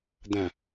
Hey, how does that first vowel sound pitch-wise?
low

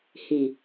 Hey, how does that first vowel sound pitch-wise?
low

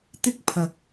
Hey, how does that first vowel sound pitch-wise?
high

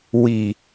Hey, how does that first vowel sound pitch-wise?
low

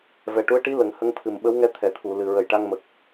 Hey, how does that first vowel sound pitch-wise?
low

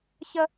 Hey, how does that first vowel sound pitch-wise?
high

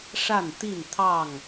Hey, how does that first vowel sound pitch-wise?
falling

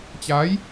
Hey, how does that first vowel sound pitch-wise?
rising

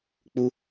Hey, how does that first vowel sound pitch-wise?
high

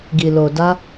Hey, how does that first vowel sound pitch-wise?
low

